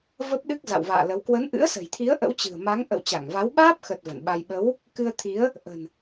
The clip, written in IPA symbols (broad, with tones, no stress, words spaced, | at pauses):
və˦˥p̚ɗɨ˦˥k̚ za̰˧˨wva̰ː˧˨lə˨˦w kwə˨˦nʔɨ̰˧˥ə̯sə̤˨˩jt̪ʰi˨˦ə̯ ʔə̰˧˥wt͡ɕɨ̤˨˩ə̯ma˨˦ŋ ʔə̰˧˨wt͡ɕa˧˩ŋva˨˦w ɓaː˦˥p̚xə˨˩t̚ və̰˧˨nɓa˧j ɓə˨˦w | kɨ˧ə̯t̪ʰi˨˦ə̯ | ʔə̤˨˩n